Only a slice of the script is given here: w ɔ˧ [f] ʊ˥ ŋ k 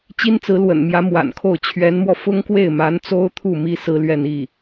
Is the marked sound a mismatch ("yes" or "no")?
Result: no